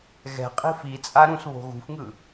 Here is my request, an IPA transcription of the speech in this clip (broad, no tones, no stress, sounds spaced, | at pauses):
ɣ ɛ̤ qʼ i̤ f i t͡sʼ a ɾ ũ s β o̤ ɣ ṳ f ŋ ɯ